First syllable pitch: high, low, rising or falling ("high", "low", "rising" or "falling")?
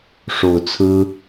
low